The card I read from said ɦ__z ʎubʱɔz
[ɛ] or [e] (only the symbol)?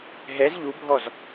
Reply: ɛ